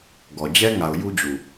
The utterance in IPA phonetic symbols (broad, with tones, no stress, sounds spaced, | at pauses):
ɡ ɔ˨ d͡ʑ ɛ˦ ŋ a˨ ʊ̯ j u˦ d͡ʑ u˨